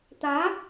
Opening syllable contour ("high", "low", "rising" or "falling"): rising